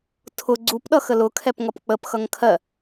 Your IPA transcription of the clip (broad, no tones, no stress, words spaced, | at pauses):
tʰʊ ɡ͡ǀupɗʌ xəlʊkʰɛp ŋʌpk͡pəpxʌŋ kʰɜ